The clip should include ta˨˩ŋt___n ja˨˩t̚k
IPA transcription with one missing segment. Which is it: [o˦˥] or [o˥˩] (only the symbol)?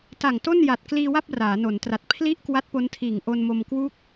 o˥˩